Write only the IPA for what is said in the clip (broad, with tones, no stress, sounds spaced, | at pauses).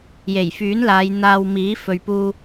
j e˨˩ j f yː˨˥ n l aː˨˧ j n̪ aː˧ w m iː˨˥ f ɵ˨ ɥ p uː˧